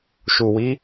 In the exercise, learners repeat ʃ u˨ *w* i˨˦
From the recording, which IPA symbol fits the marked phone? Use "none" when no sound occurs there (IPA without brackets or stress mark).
w